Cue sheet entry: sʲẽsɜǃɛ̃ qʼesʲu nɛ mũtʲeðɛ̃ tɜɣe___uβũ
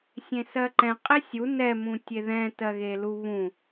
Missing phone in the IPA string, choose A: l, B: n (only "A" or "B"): A